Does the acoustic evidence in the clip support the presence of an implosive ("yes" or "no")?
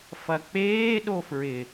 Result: yes